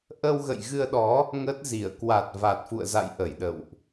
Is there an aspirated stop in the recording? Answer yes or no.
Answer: no